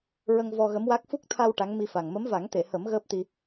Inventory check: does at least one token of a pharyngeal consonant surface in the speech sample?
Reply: no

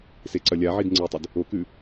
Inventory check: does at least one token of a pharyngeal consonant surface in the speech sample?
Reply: yes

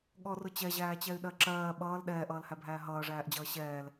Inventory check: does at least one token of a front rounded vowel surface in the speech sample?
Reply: yes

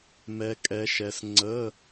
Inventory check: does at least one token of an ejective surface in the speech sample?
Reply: yes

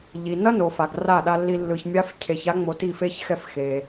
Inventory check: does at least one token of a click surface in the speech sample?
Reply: no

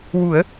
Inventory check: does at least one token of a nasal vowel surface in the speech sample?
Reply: no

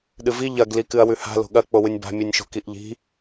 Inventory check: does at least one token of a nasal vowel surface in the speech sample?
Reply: no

